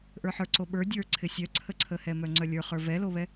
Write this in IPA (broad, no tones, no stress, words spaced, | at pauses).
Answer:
ʔə˞ħə˞ǀoɓə˞ dʲə˞ǀʰɪ sʲœǀʰəǀʰəhɛ mœŋ͡ǀœlʲə˞χə˞ vɛloβɛ